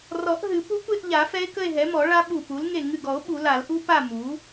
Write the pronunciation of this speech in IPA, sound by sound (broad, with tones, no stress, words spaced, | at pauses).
rɔ˨˩˦ʔɦɨ˨˩˦ pu˦˥kʷe˥˧ʔʎa˨˩˦ fɛ˦˥e̯kə˥˧e̯ɦɛ˩˥mɔ˨˩˦ ɭa˦˥ɓu˧˩pu˩˥l ŋe˧˩ŋɨ˧˩ɡɔ˨˩˦o̯ ɓu˨˩˦la˨˩˦lʔu˦˥ pa˥˧mu˩˥